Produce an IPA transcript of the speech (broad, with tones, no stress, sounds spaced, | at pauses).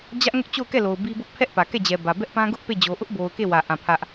d͡ʑ ä˦ ʔ ŋ ʊ˦ ʔ t͡ɕ o˦˨ ʊ̯ k ɛ˦˨ l o˨ ʊ̯ b i˦ b ʊ˦ ʔ pʰ ɛ˦ ʔ p ä˨ k ɛ˦˨ d͡ʑ ɛ˨ b ä˨ b ɛ˦ ʔ p ã˦ ɡ ʊ˦ ʔ p e˦˨ d͡ʑ o˨ ʔ ʊ˦ ʔ b o˨ ʊ̯ k e˦˨ w ä˦˨ ʔ ã˦˨ pʰ ä˦ ʔ